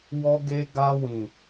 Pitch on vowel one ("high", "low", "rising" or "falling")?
high